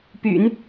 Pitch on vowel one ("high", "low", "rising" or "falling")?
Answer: low